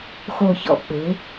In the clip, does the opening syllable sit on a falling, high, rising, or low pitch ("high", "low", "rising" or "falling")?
low